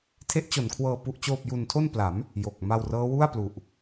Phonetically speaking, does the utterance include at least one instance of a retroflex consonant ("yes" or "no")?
no